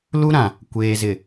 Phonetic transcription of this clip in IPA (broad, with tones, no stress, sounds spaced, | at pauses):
l u˦ ɾ ã˨ | kʷ eː˨ z ɪ˨